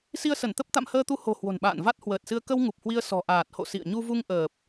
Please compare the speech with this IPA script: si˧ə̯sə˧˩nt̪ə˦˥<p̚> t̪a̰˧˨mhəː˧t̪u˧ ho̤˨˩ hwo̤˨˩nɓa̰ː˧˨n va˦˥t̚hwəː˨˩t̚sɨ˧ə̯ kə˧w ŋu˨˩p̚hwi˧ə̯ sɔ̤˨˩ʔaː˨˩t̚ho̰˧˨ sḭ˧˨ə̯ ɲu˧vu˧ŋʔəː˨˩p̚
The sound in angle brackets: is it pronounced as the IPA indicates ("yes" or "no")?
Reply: yes